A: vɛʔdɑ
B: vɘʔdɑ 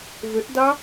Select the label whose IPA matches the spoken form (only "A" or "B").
B